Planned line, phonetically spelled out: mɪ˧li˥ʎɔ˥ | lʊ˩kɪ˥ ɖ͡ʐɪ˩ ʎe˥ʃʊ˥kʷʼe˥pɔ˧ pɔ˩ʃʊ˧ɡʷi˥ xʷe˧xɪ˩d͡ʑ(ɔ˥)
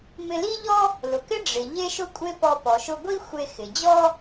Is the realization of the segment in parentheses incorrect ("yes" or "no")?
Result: no